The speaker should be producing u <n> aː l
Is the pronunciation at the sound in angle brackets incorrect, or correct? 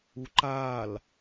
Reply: incorrect